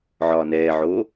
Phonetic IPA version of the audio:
ʕ ɒː n ɛː ʕ oː

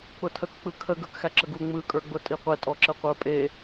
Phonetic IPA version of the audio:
k͡p ʊ tʰ ə k k͡p ɯ kʰ ə ɡ ə˞ k x æ ǁ ə ɡ u ŋ͡m ɯ kʼ ə˞ ɡ͡b ʊ tʼ i qʷ e tʼ ɔ ǁ ə qʷ ə˞ pʼ e

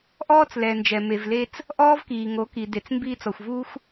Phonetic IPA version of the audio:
ʔ ɔː˧ t͡s l ɛ˨ n d͡ʒ ɛ˨ m e˨ v l e˧ t͡s | ʔ ɔː˦ v k iː˨ ŋ o˨˦ k i˨ d e˨ t͡s m b iː˧ t͡s ɔ˨ xʷ v uː˧ xʷ

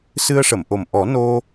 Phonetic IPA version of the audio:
s ɨ˧ ə̯ ʂ ə˨˩˨ m ʔ o˨˩ m ʔ ɔ˨˩˦ n o˧

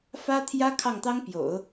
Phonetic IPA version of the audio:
f ä˥ t̪ʰ j ä˥ kʰ ɑ˥˩ ŋ t̪ ɑ˥ ŋ p j o̰˨˩˦ ʊ̯

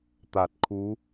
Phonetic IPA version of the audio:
t̪ a˧˩ t̚ kʰ u˧˥

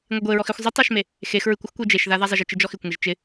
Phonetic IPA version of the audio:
ŋʷ e ɡʷ e ɹ ɔ x ɪ xʷ zˤ ɪ tˤ a ʃ m e | x e x ɹ ɨ kʷ ɪ x kʷ e d͡ʒ e ʃ ð a ð a zˤ ɪ ʒ ɪ t͡ʃ ɨ d͡ʒ ɔ x ɪ kʷ ŋ e ʒ t͡ʃ ɪ

